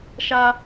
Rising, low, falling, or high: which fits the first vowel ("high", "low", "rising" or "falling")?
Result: high